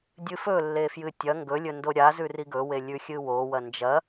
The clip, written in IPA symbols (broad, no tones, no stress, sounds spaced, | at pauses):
dʲ ɨ f ɵ lː e f j ɨ tʲ ɐ ŋ ɡ ɵ lʲ ɵ n d o ɾʲ a z ʉ r i ɡ ɵ w e lʲ ʉ xʲ ɨ w o w ɐ n d͡ʒ ɐ